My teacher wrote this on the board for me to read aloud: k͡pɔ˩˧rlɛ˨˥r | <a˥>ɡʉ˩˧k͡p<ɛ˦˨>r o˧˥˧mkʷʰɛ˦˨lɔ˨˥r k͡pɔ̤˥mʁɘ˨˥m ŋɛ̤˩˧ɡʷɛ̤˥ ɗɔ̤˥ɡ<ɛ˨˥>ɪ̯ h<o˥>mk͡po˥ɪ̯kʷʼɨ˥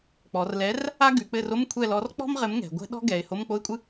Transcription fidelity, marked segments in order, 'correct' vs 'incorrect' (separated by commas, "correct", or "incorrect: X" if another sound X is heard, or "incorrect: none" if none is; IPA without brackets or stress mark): correct, incorrect: ɘ˦˨, incorrect: ɛ˩˧, incorrect: o˧˥˧